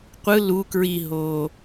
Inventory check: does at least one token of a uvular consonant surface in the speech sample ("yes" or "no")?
yes